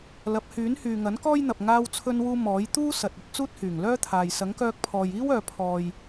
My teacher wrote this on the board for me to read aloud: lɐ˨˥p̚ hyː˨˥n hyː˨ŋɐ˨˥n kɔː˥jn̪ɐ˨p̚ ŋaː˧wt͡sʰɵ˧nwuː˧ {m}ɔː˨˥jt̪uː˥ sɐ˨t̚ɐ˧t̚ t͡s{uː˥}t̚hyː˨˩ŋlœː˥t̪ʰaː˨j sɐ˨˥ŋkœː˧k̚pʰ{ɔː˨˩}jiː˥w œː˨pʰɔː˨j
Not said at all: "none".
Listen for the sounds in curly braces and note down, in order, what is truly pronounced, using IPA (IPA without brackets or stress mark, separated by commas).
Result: m, uː˥, ɔː˨